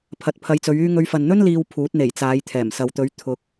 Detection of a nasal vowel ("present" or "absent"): absent